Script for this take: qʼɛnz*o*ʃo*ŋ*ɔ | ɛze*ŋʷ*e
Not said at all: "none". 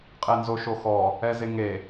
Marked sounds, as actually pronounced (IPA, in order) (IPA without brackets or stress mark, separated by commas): o, x, ŋ